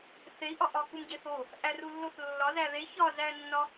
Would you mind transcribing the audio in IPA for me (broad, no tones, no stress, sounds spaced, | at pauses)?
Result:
θ e i̯ ʔ ɒ ʔ ɒ k u m ɟ e θ o | ʔ æ r u lː o θ lː ɒ z æ ð e ç ɒ z æ nː ɒ